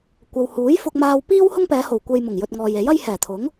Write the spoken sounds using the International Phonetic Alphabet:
kʷ ɐ˨ w h uː˨˥ j f ʊ˧ k̚ m aː˨ w p iː˥ w h ʊ˥ ŋ p ɛː˨˧ h o˨˩ w kʷ e˧ j m ʊ˨˩ ŋ j ɵ˨ t̚ ŋ ɔː˨ j e˨˥ j ɐ˥ j h ɛː˨˩ t̪ʰ ʊ˨˥ ŋ

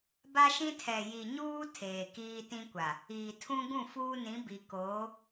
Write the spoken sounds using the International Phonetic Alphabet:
b a˦ ʃ ĩ˦ tʰ ɛ˨ j i˨ ɲ uː˦ tʰ eː˨ k iː˦ t ĩ˦ kʷ a˨ | iː˨ tʰ ũ˦ ɡ ũ˦˨ f uː˦ n ĩ˨˦ b i˨ k oː˨˦

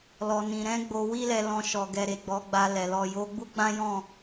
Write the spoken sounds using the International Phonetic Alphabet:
l ɔ˧ n ĩ˧ ɾ ɛ̃˧ ɡ͡b o˧ w i˦ l ɛ˧ l ɔ̃˧ ʃ ɔ˨ ɡ ɛ˨ ɾ e˨ ɡ͡b ɔ˨˦ ɡ͡b a˧ l ɛ˨ l ɔ˨ j o˨˦ ɡ͡b u˦ ɡ͡b ã˦ j ɔ̃˦˨

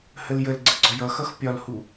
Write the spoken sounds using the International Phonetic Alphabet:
h ə l j ə l ɡ͡ǀ ə ɡ͡ǀ ɒ j ʌ x ʌ x pʲ ɒ l h u

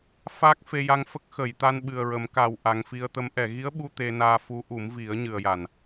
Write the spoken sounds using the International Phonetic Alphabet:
f aː˦˥ k̚ f e˧ j a˧ ŋ f ə˦˥ k̚ x ə˨˩˨ j t̪ a˧ n ɓ ɨ˨˩ ə̯ ɹ ə˨˩˦ m k a˨˩ w ʔ a˨˩ ŋ f i˧ ə̯ t̪ ə˧˥ m ʔ ɛ˨˩˨ ɣ i˧˥ ə̯ ɓ u˧ t̪ e˧ n aː˧ f u˧˥ ʔ u˨˩˦ m v i˨˩˦ ə̯ ɲ ɨ˨˩ ə̯ j a˨˩˨ n

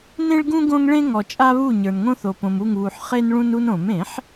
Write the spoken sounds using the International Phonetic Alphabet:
n ẽ˦ ɭ ɡ ũ˦ ɡ õ˦ ŋ ɭ ẽ˦ ŋ ɔ˨ t͡ʃʼ a˦ β u˦˨ ɲ ə˞˨ n ŋ õ˦ θ o˨ p õ˨ m u˦˨ ŋ β u˨ ħ χ e˦ n ɭ ũ˦ n u˦ n õ˨˩˦ m ẽ˨˩˦ ħ

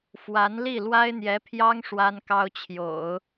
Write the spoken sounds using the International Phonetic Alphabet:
f w a˧˥ n l i˥˩ l w a˥ ɪ̯ n̪ j ɛ˧˥ pʰ j ɑ˥ ŋ ʂ w a˥ n k ɑ˥ ʊ̯ t͡ɕʰ j o̰˨˩˦ ʊ̯

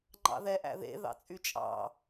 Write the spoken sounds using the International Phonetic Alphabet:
ŋ͡ǃ ɑ̰ ð ɛ ʔ æ̰ ð ḛ ð ɑ̰ t͡sʼ y t͡ʃʼ ɑ̰

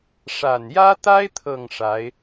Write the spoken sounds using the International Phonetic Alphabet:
ʂ a˨˩ n j ä˥ t̪ a˥ ɪ̯ t̪ʰ ɤ˥˩ ŋ ʂ a˧˥ ɪ̯

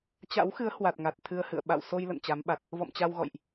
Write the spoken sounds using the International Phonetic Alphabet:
t͡ɕ a̰˧˥ w x ɨ˨˦ ə̯ h w a˨˩ t̚ ŋ a˨˩ t̚ t̪ʰ ɨ˧ ə̯ h ɨ̰˧˨ ə̯ ɓ a̰˧˨ w s o˧ j l ə̰˧˨ n t͡ɕ a˨˦ m ɓ a˨˩ t̚ | v ɔ̰˧˨ m t͡ɕ a˧ w ɣ ɔ̰˧˨ j ʔ

